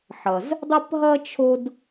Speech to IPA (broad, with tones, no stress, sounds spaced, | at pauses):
ħ ʌ˩ z | dˤ ɘ˥ p ɦ ʌ˥ t͡ʃʰ o˥ d